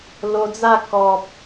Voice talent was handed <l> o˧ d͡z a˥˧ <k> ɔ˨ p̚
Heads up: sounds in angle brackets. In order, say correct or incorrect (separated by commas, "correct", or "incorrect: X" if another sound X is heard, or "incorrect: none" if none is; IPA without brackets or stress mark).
correct, correct